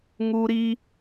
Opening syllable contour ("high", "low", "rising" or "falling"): high